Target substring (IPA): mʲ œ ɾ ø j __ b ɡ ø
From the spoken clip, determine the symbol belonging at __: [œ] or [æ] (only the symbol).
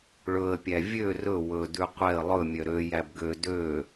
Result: æ